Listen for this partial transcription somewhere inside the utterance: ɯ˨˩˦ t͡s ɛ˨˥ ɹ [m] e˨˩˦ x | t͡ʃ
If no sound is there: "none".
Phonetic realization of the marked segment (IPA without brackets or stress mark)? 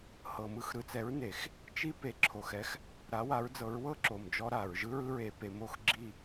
n